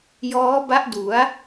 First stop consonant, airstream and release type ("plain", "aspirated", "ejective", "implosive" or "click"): plain